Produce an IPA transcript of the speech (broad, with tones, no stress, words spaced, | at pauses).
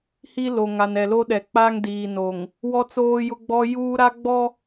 hi˦lo˨ŋa˨n ɛ˨lo˦ɗɛ˨ k͡pa˦ŋdiː˨ no˨ŋ | wɔ˦t͡soː˦jʊ˦ɡ͡bɔ˦ juː˦ɾa˦ ɡ͡bɔ˦